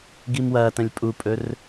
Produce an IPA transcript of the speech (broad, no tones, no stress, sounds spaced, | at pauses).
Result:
ɡ i m w ɐː t ɐ̃ lʲ pʼ u pʼ ɵ r